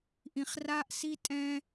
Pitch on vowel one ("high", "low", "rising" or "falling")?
low